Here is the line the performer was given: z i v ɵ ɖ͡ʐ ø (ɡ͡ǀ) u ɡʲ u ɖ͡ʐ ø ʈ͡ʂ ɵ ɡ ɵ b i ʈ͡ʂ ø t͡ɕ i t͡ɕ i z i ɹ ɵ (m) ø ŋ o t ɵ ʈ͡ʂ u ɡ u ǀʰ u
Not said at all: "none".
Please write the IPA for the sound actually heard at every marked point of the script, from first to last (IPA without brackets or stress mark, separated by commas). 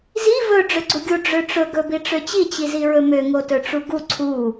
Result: ɡ͡ǀ, m